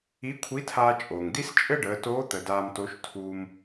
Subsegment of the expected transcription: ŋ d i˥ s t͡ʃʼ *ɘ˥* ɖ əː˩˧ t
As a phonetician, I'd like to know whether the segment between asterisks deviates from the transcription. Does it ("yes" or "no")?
no